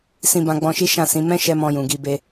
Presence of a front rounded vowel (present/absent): absent